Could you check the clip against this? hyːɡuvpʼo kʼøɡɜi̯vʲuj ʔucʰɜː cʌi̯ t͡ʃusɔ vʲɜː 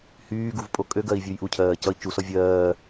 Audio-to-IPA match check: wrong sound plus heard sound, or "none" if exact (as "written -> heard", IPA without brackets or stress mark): none